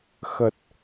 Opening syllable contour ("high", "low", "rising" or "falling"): low